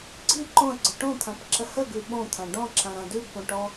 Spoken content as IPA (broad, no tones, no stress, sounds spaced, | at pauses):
ɡ͡ǀ i ǃ õ ə̯ ɡ͡ǀ ə ʈ õ t̪ʰ ã p ǁ ə h ə ɡ ʉ ɓ õ t̪ʰ ã ɖ ɔ̃ ǁ ã ɾ ã d ʉ ɡ p õ ʈ ɔ